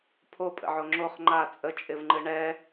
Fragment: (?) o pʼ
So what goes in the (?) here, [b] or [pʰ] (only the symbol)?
pʰ